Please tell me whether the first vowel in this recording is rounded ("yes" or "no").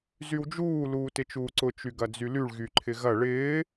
yes